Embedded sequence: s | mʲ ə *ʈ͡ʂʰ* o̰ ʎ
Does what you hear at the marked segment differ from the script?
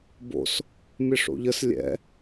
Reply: yes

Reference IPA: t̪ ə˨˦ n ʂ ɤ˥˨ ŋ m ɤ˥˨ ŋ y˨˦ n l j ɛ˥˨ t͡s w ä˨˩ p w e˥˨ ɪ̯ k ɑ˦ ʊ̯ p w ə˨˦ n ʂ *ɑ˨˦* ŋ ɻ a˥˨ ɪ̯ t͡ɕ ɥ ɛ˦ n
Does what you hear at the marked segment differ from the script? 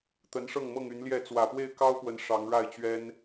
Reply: no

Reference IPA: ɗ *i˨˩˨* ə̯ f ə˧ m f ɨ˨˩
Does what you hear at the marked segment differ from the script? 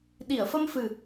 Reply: no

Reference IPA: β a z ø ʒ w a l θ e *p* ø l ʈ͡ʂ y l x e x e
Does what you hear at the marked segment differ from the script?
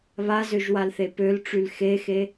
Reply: no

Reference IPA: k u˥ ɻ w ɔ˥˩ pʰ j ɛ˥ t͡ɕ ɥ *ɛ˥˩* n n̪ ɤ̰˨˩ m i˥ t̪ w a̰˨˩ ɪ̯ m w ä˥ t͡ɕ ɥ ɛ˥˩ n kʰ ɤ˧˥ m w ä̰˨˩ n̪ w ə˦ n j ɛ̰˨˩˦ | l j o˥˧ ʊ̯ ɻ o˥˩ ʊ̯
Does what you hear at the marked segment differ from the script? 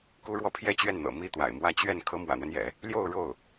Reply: no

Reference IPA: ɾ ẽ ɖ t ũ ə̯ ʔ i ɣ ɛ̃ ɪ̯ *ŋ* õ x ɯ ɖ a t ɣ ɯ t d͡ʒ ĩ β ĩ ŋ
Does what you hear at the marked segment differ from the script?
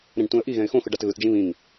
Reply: yes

